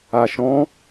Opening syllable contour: low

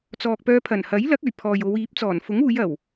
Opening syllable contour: low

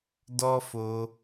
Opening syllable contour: high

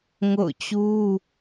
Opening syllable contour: falling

